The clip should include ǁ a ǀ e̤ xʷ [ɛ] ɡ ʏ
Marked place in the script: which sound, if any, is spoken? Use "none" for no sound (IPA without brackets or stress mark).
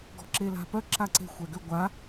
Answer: ɛ